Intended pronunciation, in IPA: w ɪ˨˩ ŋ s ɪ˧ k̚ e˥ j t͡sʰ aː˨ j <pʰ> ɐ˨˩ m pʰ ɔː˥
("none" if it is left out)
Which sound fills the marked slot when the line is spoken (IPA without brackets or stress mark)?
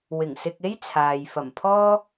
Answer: f